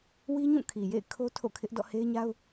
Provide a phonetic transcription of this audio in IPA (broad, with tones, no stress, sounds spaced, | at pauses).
w i˦ ɲ ũ˦˨ kʰ i˨ j ḛ˦˨ ɪ̯ kʰ o˦ tʰ o̰˦˨ kʰ ɪ˦ ʔ d ɔ̰˦˨ h e˦ ɪ̯ ɲ a˦ ʊ̯